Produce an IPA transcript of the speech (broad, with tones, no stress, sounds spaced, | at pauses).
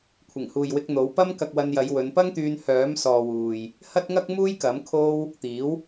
kʷʰ ɪ˨˩ ŋ h uː˨ j w ɪ˧ k̚ n̪ o˨˥ w p ɐ˥ m k ɐ˧ k̚ w ɐ˧ n j ɐ˨˧ j w ɵ˨˧ n p ɐ˥ ŋ t̪ yː˧ n h œː˨˥ m s ɔː˨ w uː˨ j | h ɐ˥ t̚ ŋ ɐ˥ k̚ m uː˥ j k ɐ˨˥ m kʰ o˥ w | t̪ iː˨˥ w